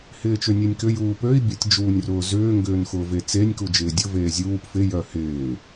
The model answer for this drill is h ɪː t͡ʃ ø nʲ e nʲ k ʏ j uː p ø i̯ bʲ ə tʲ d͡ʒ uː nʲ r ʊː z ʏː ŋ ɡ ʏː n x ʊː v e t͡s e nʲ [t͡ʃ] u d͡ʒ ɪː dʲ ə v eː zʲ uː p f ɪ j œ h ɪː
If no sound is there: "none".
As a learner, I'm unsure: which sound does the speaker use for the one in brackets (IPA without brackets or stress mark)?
k